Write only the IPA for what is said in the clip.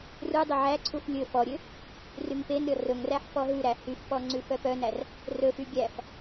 ru dˤɵʕæǀʰuf lʲɵ fɔɾʲø | ryŋpenɾʲɔ rɵŋræħ fɔɦʉɾæ hyfpɔ ŋ͡ǀʉfœpœnær | rɵfy ɡʲæf

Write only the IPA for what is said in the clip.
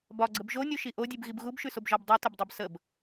bɒɡ͡ǀəb ʒonʲuʃi ʔodʲʉbɣib ɣubʃʉsobʒɒb dˤutəbdˤʉb səb

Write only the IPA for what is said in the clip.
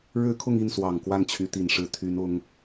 ɻɻ̩˥kʰʊ˥˧ŋi˥˩nswɑ˨˩ŋ kwa˥˩nt͡ɕʰy˧˥t̪i˨˩nʂɻ̩˧˥ t̪ʰy˧˥nʊ˧˥ŋ

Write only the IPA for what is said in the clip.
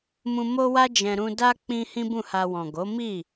mũ˧ mo˦wa˦d͡ʒɛ̃˧ ɾũ˧da˦k͡pĩ˧ hĩ˦bũ˦˨ha˧ wɔ̃˨ɡo˨˦mi˦˨

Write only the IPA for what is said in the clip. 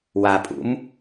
wapʼṵm

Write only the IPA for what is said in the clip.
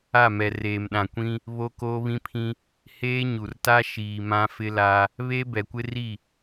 a˦˨mɛ˨ reː˨mɗã˨kʷĩ˦ | βo˦koː˦βĩ˦pʰĩ˦ | heː˦ ɲu˨r ta˦ʃiː˨ mã˦ fɪ˦la˦ | βe˦ bɛ˨kʷɪ˦ri˦˨

